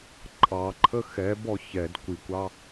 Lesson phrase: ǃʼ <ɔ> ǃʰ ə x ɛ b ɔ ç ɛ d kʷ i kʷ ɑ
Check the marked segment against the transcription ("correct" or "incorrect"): incorrect